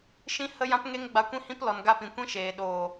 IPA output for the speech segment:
ʃ ĩ˦ h ə˦ j ã˦ p ŋ e˦ ŋ ɡ͡b a˧ kʷ ĩ˦ h ĩ˦ p l ɔ˨ n ɡ a˧ p ĩ˨ kʷ ĩ˦ ʃ eː˨ ɗ oː˨

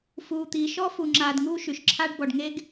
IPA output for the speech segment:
f uː˧ t̪ iː˧ ʃ ɔ˦ f u˧ ŋ͡ǁ aː˧ d ŋ uː˦ ʃ y˨ ʃ ǁʰ aː˦ ɖ b ɔ˨ ɖ ŋ e˦ ɡ

